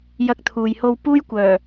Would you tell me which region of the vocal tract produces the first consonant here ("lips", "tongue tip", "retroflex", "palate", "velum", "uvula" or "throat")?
palate